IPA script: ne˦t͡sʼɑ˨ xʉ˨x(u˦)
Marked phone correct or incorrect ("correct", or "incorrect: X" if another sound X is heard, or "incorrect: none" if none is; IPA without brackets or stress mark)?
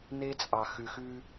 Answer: incorrect: ʉ˦